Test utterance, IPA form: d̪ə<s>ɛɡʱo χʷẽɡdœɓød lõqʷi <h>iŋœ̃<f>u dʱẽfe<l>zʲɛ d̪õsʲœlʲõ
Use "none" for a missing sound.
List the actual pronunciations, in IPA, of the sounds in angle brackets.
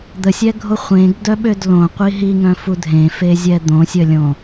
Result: sʲ, ɦ, f, none

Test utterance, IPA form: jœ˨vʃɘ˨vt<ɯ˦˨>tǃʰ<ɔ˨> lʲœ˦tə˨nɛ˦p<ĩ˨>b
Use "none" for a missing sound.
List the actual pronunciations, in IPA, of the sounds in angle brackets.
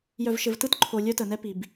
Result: ɯ˦˨, o˨, i˨

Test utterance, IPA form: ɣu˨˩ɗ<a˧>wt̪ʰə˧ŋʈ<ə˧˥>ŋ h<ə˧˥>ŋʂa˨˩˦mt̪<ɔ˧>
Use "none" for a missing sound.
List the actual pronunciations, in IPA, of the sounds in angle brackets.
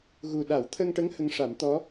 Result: a˨˩˦, ə˧˥, ə˧˥, ɔ˧˥

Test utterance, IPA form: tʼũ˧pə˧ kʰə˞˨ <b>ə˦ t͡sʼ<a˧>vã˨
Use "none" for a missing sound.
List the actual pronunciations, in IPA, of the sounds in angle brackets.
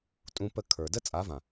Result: d, a˨˦

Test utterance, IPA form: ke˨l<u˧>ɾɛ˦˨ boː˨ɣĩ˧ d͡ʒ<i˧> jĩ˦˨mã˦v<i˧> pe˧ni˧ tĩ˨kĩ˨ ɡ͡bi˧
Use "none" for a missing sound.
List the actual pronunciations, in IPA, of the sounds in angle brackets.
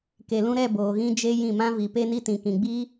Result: ũ˧, e˧, i˨

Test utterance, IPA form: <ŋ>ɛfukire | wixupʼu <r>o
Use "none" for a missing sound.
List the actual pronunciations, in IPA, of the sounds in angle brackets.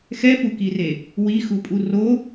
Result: x, r

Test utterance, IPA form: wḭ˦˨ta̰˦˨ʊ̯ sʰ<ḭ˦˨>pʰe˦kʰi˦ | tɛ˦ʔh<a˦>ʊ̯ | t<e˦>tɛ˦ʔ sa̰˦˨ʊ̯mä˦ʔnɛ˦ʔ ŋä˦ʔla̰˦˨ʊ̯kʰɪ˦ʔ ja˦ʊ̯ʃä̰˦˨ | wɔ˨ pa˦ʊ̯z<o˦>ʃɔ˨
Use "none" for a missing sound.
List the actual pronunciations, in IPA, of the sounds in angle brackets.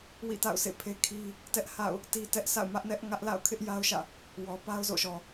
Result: ḛ˦˨, a̰˦˨, i˦, o̰˦˨

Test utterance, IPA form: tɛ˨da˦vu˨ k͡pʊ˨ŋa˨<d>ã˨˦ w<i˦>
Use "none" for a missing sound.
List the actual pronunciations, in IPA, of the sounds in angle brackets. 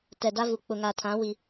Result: tʰ, i˦

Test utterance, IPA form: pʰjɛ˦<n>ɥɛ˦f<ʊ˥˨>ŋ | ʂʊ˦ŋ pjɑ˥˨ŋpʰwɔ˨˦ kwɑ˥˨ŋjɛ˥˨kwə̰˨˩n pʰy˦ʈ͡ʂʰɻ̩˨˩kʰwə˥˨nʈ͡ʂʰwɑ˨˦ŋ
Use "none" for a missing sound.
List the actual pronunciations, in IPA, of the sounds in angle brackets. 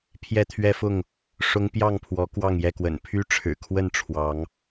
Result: t̪ʰ, ʊ˥˨

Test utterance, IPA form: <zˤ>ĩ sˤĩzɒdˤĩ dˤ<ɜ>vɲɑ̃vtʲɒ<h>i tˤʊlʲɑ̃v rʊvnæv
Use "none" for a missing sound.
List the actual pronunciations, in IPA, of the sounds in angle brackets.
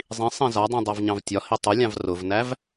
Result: zˤ, ɜ, h

